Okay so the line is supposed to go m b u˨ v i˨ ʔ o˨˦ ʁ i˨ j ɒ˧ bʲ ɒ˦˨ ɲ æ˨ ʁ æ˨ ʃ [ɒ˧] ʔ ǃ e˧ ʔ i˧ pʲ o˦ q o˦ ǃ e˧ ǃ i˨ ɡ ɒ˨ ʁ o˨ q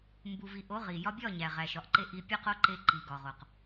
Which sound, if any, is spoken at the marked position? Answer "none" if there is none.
ɒ˨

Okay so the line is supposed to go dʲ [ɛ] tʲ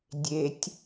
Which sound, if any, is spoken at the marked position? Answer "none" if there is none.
e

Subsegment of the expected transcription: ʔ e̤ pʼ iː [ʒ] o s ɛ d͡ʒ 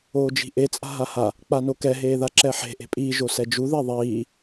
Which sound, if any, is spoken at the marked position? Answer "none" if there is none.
ʒ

